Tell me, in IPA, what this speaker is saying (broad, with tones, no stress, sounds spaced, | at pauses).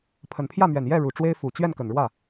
pʰ ə˨˩ n pʰ j ä˥˩ m ɥ ɛ˨˩ n j ɛ˥˩ ɻ u˨˩ ʈ͡ʂ w e˥ ɪ̯ f u˨˩ t͡ɕ ɥ ɛ˥˩ n k ə˨˩ n ɻ w ä˥˩